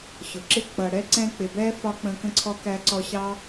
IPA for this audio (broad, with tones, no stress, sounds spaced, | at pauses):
ɕ ʊ˩ ǁ ɪ˦ k͡p ʌ˨ ɽ ɛ˥ ǀ ɛ̃˦ k͡p ɪ˨ b ɛ˥ f ɒ˥ k͡p ə̃˦ k ə̃˥ ǀʰ ɔ˥ k æ˦ ǀ ɔ˦ ɕ ɑ˥